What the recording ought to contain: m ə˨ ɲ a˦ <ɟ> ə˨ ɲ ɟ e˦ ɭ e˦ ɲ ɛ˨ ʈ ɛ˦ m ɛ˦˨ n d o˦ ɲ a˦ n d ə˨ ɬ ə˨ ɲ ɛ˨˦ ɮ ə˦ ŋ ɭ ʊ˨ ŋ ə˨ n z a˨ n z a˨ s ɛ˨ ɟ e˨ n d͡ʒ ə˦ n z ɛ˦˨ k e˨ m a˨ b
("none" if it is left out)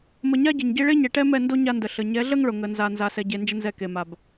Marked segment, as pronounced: ɟ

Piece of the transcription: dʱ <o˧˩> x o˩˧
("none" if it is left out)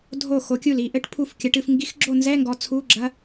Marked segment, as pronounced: o˧˩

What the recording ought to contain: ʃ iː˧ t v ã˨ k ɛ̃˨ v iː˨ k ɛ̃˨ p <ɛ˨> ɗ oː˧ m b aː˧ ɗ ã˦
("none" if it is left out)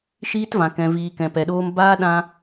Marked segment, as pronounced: ɛ˨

